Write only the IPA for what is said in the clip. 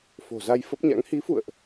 fo̤˨˩za˧jfə˦˥p̚ɲa̰˧˥ŋ hi˨˦fṵ˧˨ə̯ʔ

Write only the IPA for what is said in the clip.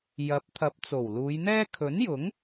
jɐ˨˥p̚ t̪ʰɐ˨˥p̚t͡so˨˩wluː˨˧jn̪ɛː˥ kʰɵ˨˥njʊ˨˥ŋ

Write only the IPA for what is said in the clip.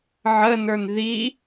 ʕənə˞n ði

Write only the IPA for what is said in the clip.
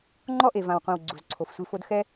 ŋ͡ǃɔ˦ʔe˨vã˨wqʷĩ˨w ɡ͡ǀu˨zǀʰo˨fsʷi˧fo˦d xɛ˦

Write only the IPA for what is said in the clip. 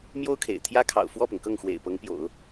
mjo˥ʊ̯kʰḛ˨˩ɪ̯ t̪ʰjä˥kʰɑ̰˨˩ʊ̯ fwɔ˥˩pʊ˩ŋkɤ˥˩ŋ xwḛ˨˩ɪ̯ pɤ˧˥ŋpjo̰˨˩˦ʊ̯

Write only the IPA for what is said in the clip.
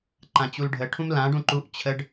ǃãt͡ɕulɖʱə ʈʰũmlã ɖũǃuʔ t͡ɕʰəɖ

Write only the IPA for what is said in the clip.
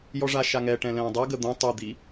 jɔʐaʃaŋɛ ʈɛ̃lɛ̃ːdˤɛ ɡəd̪õ tˤud̪i

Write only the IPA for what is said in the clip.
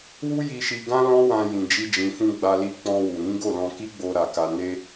wu˦ji˧ʃi˧ɡã˦ lɔ̃˦wã˧ jĩ˧d͡ʒi˦d͡ʒĩ˧fũ˦ ɡ͡ba˧li˧ k͡pɔ̃˧wu˨ɾĩ˨˦ɡo˦˨ lɔ̃˧ki˦ɡ͡bo˧ ɾa˧ka˧ ne˦

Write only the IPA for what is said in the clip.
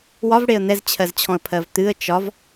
wɒv ɽeə̯n̪ɛzt͡ɕʰɜzt͡ɕʰɔ̃ə̯ pʰɜvt̪ɨə̯ t͡ʃɒv

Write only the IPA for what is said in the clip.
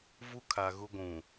vu˦kʰa˨ ɣʊ˦ɡʷũ˨

